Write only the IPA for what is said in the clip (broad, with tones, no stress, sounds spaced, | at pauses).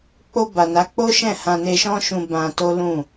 k͡p o˧ b a˨ n a˨˦ k͡p o˦ ʃ ɛ̃˦˨ h ã˧ n e˧ ʃ ɔ̃˦ ʃ ũ˧ b ã˧ t o˦ l ũ˦˨